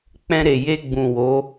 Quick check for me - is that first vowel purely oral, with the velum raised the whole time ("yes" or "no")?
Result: no